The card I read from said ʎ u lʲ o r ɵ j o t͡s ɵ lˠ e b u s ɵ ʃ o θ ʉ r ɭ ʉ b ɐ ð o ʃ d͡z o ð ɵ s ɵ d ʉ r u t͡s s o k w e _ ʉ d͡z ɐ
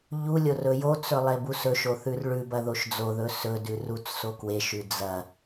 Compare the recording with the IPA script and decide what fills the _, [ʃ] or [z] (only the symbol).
ʃ